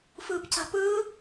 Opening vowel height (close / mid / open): close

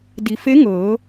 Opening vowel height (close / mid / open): close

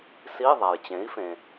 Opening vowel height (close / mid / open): close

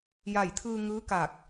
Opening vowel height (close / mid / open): open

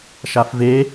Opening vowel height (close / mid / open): open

